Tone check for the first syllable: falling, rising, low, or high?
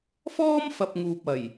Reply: high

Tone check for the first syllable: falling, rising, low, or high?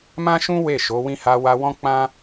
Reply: high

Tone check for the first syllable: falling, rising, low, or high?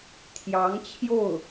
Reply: rising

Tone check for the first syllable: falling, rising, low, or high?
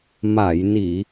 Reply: low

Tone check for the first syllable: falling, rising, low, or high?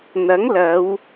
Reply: rising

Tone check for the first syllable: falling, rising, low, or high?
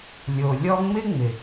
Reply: low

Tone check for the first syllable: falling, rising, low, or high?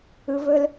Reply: low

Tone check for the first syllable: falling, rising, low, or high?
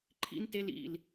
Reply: high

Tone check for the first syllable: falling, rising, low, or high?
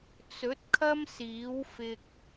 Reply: rising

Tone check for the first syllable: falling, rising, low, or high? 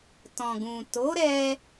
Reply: low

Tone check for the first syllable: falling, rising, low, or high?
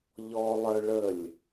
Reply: high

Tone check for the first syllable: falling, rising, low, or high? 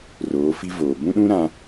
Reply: rising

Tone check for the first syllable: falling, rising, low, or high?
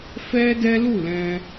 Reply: high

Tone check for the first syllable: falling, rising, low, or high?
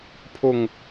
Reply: low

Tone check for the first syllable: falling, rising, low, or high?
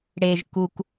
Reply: low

